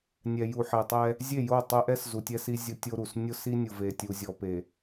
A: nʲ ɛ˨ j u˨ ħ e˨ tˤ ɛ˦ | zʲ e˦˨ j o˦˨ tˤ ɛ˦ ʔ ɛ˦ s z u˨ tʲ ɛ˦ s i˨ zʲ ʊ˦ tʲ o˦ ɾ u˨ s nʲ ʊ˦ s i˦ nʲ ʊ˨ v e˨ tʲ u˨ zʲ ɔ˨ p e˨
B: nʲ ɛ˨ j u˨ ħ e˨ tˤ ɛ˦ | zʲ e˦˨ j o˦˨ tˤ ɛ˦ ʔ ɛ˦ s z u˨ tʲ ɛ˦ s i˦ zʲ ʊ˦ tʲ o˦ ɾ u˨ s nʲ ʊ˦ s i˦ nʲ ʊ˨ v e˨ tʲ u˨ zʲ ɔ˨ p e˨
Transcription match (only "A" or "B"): B